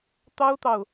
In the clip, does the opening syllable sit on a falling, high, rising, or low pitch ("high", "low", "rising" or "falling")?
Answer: high